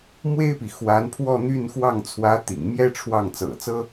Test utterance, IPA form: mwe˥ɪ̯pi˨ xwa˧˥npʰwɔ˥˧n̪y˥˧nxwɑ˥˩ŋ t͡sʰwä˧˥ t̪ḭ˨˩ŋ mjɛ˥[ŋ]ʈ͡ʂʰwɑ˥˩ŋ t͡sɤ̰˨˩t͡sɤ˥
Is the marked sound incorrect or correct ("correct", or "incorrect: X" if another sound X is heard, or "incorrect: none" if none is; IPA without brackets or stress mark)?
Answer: incorrect: none